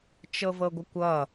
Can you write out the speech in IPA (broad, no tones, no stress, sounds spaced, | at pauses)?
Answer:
t͡ʃ ɤ v ɤ ɡʷ ə kʷ ʌ